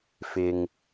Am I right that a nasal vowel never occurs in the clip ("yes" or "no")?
yes